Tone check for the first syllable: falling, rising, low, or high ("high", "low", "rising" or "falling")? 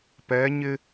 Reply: rising